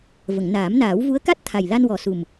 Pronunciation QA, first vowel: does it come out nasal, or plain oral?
oral